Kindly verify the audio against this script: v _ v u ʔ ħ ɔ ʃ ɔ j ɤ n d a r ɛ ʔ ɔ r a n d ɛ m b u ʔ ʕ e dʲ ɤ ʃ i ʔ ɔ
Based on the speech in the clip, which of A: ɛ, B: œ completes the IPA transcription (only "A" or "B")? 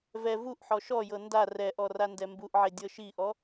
A